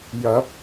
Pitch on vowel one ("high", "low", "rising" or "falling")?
rising